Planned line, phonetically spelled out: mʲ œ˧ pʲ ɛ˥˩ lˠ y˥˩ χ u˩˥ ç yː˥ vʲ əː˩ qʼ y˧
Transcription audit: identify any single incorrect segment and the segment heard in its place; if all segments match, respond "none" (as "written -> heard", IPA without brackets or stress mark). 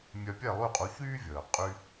χ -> qʼ